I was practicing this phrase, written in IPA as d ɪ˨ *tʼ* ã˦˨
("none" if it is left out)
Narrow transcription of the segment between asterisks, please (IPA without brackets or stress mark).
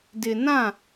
n